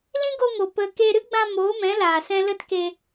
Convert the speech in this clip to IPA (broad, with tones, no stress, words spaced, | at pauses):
lĩ˦ɡo˧ŋo˨ pə˧ ke˧ ɾɨ˦ɡ͡bã˧ moː˨˦mɛ̃˨˦laː˨ sɛ̃˧lə˦t ke˧